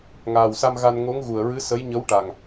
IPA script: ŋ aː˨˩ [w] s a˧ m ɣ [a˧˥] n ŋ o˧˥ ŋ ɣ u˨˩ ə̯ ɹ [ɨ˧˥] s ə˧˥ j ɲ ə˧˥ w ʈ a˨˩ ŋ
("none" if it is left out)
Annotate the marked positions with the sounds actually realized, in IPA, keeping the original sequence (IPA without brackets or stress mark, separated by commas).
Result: w, a˧, ɨ˧˥